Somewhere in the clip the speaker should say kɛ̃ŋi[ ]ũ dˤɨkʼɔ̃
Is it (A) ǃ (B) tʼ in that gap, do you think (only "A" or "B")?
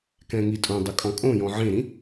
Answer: B